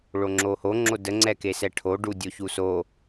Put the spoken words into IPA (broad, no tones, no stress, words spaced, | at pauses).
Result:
ɭoŋ͡ǁoho ŋ͡ǁodə ŋ͡ǀɛkesɛʈʰo ɖudʲoçuso